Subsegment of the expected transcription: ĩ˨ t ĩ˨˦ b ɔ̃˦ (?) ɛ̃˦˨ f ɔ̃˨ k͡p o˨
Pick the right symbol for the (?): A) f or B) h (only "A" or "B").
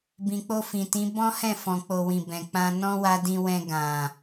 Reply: B